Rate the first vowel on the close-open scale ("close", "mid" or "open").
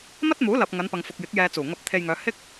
open